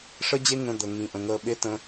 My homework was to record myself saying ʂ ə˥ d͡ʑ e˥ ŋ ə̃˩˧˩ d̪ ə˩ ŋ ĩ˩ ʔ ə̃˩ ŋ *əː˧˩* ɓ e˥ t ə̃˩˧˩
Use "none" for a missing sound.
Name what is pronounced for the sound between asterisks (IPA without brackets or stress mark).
əː˧˩